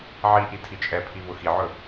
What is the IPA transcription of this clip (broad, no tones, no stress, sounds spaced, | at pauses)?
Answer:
ʕ i ʔ i tʰ i t͡ʃʼ ɛ pʰ i β ʊ x i ʕ ɵ